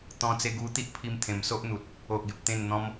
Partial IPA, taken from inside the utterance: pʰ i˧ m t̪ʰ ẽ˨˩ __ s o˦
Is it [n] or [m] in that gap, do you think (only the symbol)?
m